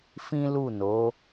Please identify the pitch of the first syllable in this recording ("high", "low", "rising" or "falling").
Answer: high